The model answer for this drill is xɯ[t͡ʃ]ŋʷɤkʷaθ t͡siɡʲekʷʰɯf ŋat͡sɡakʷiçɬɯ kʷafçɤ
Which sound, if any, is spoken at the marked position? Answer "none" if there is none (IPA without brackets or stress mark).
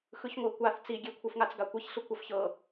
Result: ç